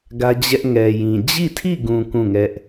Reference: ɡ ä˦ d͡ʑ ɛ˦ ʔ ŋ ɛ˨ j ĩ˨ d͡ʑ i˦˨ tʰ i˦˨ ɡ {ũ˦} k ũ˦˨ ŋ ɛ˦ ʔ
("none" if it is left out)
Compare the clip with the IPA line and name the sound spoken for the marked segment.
ũ˨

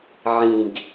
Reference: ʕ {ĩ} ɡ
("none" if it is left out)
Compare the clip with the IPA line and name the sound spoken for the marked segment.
ĩ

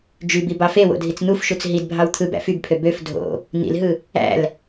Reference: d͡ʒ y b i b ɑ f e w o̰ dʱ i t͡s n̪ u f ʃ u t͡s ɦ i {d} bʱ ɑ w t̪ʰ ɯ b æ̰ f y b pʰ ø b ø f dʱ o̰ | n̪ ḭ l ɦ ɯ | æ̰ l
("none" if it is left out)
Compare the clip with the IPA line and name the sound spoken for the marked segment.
d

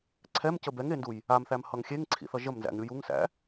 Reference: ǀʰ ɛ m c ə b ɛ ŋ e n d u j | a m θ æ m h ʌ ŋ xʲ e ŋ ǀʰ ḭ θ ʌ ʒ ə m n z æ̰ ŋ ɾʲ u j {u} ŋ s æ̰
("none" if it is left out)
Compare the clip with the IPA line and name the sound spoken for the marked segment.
u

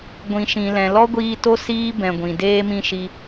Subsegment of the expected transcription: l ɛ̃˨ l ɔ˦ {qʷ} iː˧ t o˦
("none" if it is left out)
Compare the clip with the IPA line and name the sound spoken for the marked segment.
ɡʷ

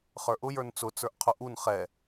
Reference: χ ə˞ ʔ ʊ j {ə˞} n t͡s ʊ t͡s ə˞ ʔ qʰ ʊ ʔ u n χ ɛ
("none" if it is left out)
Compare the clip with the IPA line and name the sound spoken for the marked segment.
ə˞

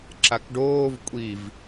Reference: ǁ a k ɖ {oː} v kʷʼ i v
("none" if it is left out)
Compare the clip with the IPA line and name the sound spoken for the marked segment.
oː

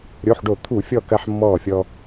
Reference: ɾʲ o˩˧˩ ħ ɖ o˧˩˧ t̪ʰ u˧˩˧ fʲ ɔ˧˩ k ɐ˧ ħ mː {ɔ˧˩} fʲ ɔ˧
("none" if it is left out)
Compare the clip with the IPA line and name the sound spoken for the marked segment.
ɔ˧˩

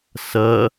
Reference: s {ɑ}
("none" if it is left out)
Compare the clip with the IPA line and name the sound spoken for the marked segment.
ɐ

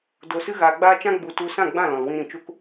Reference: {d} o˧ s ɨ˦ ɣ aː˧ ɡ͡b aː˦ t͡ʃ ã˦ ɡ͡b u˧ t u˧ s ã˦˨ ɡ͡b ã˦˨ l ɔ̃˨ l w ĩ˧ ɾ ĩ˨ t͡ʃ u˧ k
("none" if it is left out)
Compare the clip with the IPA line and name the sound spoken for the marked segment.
d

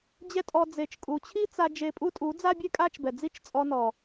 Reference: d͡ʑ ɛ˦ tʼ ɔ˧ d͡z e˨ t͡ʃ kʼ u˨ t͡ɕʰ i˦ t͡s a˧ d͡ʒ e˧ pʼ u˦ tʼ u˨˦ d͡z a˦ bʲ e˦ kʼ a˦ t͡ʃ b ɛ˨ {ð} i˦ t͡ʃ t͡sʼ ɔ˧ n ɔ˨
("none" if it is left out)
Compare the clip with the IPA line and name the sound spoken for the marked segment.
d͡z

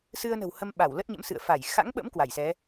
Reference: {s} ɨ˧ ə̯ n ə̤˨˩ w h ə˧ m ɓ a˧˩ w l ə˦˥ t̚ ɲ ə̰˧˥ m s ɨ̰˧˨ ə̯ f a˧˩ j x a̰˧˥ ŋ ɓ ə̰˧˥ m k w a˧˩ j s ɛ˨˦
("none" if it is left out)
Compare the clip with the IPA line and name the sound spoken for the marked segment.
s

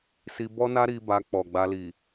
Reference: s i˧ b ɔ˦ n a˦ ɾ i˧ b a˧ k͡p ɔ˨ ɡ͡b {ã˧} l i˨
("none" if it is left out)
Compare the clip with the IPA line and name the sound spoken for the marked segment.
a˧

